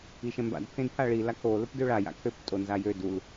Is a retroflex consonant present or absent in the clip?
present